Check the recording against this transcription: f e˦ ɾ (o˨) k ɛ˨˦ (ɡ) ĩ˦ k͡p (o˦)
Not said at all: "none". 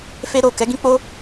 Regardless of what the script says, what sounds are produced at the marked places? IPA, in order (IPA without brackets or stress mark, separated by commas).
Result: o˦˨, ɡ, o˦